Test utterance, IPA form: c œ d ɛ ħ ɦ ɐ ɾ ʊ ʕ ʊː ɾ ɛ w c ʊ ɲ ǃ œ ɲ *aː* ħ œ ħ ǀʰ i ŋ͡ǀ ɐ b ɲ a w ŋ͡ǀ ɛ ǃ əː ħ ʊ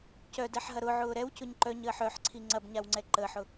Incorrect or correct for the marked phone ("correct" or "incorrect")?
incorrect